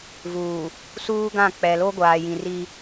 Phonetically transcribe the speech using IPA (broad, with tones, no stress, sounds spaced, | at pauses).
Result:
v uː˨ | s uː˦ ɡ ã˦˨ k͡p ɛ˨ l o˦ ɡʷ aː˨ j ĩ˨ r i˦